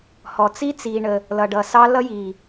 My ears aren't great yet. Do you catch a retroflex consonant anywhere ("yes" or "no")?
yes